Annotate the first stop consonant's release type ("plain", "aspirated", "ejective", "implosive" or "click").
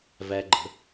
click